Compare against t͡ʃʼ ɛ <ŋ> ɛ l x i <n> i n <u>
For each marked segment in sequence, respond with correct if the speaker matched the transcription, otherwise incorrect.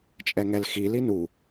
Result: correct, incorrect, correct

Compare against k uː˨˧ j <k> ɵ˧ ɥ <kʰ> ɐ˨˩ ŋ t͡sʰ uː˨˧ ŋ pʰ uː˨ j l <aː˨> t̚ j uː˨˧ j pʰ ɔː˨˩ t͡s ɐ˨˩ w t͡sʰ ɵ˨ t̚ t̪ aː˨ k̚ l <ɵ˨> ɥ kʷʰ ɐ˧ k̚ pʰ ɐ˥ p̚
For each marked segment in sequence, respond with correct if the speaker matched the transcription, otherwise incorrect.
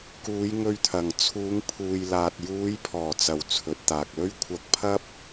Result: incorrect, incorrect, correct, incorrect

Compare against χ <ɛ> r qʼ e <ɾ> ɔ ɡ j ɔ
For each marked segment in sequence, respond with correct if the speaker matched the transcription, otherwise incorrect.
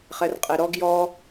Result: correct, correct

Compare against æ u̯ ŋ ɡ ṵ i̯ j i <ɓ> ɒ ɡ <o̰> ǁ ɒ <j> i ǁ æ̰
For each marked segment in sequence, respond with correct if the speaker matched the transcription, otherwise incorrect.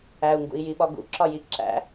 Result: correct, incorrect, correct

